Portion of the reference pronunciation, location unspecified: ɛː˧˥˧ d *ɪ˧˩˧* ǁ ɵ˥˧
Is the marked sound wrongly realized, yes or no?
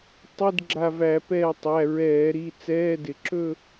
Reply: no